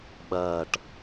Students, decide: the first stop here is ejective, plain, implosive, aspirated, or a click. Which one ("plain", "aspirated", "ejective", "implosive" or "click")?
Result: implosive